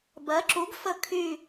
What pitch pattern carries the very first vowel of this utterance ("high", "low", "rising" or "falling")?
rising